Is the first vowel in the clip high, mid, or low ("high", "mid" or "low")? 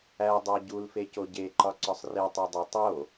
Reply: low